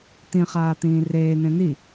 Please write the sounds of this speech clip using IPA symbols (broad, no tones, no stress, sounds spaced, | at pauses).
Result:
t̪ ĩ χ aː t̪ ĩː r eː n̪ ẽ n̪ i